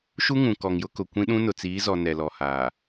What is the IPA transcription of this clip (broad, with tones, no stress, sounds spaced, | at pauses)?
ʃ u˦ ŋ ũ˨ k ɔ˨ ŋ j ʊ˦ k ʊ˨ kʷ ĩ˦ ɗ ũ˦ n ʊ˨ t͡s iː˨˦ z ɔ˨ n ɛ˨ l ɔ˨ h aː˨